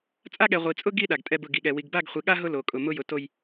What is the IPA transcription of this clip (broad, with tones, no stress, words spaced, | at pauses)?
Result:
t͡sʼa˦ɠɛ˨ ʁʷi˨t͡sʼʊ˦ ɡi˦ ɗa˨ɡtʼɛ˦bʊ˦˨ ɡi˨ɠɛ˨ wi˨ɡba˦˨ɡχʷi˨ɠa˦ ɦʊ˦ lo˨kʼʊ˨ mʊ˦jʊ˨ to˦j